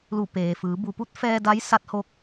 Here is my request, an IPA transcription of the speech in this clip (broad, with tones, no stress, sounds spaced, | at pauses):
l u˧˩ p eː˩ f ɯː˩˧ b u˩˧ p u˧˥ t̚ f ɛː˧ d a˧˥ j s a˧˥ t̚ h o˧ k̚